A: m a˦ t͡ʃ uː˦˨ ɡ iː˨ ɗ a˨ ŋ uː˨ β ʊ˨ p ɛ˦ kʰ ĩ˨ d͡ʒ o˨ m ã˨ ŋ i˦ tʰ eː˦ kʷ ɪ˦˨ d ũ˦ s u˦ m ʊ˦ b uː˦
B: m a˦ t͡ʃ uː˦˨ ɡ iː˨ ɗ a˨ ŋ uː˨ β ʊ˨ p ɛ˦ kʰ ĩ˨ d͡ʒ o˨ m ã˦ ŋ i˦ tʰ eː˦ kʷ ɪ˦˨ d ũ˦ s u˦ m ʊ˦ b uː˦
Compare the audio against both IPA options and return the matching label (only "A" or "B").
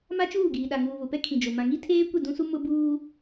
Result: A